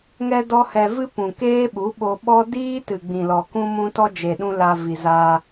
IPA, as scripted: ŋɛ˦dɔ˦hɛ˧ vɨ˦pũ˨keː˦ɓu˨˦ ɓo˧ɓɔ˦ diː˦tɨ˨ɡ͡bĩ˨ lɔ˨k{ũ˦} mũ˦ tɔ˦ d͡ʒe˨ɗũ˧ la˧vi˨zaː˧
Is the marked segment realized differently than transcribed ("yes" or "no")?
no